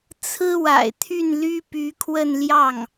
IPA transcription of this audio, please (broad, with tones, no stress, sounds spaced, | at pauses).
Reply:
t͡sʰ ɹ̩˥ w a̰˨˩ ɪ̯ t̪ʰ y˥˩ n l y˥ p y˧˥ kʰ w ə˥˧ n l j ɑ˥˩ ŋ